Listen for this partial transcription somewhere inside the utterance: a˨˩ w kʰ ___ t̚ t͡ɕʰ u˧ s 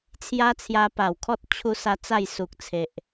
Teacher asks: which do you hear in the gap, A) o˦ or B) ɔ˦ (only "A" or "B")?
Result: B